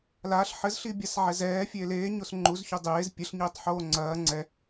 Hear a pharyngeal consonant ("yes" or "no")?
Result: yes